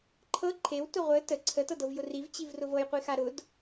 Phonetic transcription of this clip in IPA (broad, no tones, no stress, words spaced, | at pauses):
ǃʰɤ ǃʰewtʊ ʁʷə tə ǀʰətɤdɤvjʊ rivt͡ɕivrʊv ɤjqʷixa ɾʊd